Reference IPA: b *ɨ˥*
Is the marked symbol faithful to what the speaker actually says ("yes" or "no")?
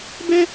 no